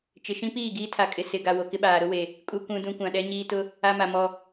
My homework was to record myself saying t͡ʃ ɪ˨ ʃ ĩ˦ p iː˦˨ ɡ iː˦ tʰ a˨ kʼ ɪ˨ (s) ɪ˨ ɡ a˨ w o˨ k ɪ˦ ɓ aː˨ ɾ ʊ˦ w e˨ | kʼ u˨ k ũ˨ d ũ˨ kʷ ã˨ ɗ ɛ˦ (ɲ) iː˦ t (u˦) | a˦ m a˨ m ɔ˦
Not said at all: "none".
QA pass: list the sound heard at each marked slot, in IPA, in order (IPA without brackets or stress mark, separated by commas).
s, ɲ, ʊ˦